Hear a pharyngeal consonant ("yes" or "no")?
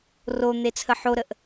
yes